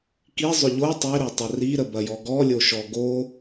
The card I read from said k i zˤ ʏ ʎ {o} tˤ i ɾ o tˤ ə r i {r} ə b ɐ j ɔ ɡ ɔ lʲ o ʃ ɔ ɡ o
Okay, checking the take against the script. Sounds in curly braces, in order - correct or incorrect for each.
correct, incorrect: ɾ

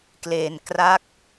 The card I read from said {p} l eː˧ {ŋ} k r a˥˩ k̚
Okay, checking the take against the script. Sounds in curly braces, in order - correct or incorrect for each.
incorrect: k, incorrect: n

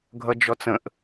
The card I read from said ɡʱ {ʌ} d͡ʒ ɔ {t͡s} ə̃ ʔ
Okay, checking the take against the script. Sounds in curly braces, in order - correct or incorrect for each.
correct, correct

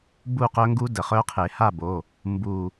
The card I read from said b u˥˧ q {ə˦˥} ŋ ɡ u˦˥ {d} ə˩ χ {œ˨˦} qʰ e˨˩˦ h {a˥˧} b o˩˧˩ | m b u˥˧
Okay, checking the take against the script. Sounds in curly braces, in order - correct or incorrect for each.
incorrect: œ˦˥, correct, incorrect: œ˦˥, correct

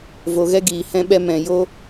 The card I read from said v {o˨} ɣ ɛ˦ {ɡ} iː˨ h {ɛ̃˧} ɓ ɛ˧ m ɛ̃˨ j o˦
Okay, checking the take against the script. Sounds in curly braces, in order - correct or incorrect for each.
correct, correct, correct

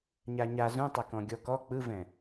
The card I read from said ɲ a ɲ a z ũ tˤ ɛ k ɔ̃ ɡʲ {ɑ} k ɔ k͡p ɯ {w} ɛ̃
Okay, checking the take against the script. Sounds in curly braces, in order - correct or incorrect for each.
incorrect: ɔ, incorrect: v

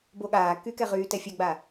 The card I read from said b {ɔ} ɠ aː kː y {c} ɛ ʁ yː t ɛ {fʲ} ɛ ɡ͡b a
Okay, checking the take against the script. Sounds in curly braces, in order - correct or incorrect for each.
incorrect: o, incorrect: k, correct

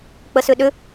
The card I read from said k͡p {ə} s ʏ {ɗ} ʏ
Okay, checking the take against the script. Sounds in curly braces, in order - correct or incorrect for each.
correct, correct

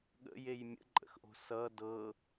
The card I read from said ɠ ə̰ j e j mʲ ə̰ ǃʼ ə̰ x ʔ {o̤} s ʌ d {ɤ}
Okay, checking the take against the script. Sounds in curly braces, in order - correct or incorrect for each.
correct, correct

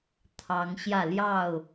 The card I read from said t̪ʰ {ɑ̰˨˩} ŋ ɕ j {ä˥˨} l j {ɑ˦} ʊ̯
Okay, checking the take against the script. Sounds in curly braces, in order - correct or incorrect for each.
incorrect: ɑ˨˦, correct, incorrect: ɑ˥˨

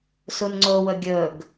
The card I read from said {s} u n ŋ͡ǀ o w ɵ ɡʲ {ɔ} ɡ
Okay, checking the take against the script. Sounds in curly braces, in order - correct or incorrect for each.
correct, incorrect: ɵ

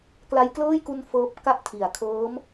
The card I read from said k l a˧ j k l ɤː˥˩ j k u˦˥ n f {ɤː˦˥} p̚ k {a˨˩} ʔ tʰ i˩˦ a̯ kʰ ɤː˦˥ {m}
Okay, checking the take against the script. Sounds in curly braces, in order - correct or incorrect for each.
correct, incorrect: a˦˥, correct

